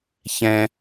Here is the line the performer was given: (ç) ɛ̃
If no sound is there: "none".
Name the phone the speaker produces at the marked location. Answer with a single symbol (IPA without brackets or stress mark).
ç